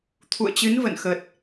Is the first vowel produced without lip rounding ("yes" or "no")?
no